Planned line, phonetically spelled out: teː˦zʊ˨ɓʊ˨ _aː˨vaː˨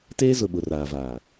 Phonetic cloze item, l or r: r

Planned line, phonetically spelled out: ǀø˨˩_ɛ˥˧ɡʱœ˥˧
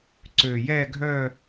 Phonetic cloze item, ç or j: j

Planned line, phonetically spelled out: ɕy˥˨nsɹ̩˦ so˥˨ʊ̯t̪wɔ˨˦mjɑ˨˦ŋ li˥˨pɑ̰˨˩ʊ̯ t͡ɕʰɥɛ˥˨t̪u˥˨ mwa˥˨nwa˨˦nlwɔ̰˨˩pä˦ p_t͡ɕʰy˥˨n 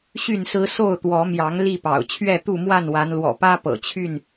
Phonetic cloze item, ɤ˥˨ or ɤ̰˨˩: ɤ̰˨˩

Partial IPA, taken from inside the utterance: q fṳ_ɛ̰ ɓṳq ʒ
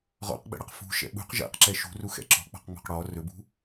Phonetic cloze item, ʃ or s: ʃ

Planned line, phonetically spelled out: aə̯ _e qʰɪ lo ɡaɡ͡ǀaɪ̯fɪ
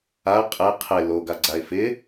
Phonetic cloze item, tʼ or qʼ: qʼ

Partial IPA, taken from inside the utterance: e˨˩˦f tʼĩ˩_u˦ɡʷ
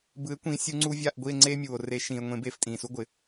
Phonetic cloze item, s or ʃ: s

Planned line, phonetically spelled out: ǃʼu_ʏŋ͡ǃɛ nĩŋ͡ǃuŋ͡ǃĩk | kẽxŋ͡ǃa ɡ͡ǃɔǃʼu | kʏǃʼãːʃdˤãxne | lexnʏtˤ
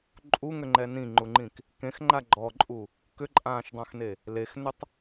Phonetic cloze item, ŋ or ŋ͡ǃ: ŋ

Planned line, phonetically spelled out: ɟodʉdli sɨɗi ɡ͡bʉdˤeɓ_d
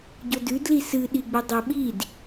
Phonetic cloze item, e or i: i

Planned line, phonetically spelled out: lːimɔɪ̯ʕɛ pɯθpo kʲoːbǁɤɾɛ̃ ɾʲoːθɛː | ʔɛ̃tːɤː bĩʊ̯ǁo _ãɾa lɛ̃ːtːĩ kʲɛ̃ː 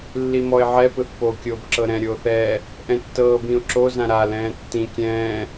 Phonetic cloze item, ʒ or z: z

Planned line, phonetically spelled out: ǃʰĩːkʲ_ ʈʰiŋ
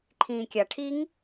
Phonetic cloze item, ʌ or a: a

